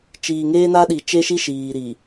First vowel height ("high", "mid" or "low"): high